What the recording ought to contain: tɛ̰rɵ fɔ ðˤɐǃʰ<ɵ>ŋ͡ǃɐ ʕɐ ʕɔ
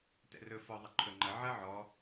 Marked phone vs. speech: correct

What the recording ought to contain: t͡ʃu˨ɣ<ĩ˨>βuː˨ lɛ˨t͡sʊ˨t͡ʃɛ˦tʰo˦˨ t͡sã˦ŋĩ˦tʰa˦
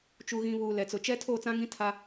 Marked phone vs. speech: correct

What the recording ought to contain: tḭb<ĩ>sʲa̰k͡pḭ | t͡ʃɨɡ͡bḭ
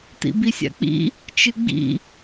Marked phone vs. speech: incorrect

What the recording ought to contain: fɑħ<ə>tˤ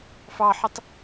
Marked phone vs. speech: correct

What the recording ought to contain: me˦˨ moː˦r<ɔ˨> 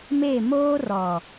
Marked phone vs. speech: correct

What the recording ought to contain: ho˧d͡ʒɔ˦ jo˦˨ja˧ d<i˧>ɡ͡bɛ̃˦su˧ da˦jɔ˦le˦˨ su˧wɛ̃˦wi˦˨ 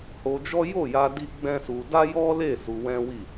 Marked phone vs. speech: incorrect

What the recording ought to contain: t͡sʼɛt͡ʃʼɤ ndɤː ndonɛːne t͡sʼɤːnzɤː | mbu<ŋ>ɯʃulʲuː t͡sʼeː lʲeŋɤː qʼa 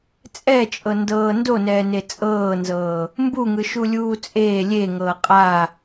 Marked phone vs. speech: correct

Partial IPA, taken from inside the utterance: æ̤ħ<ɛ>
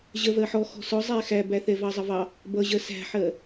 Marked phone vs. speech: incorrect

